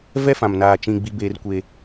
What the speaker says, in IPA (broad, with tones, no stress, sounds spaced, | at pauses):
v ɛ˦ f ã˨ m n aː˨ t͡ʃ ĩ˨ ɡ͡b i˦ b eː˦ r kʷ e˦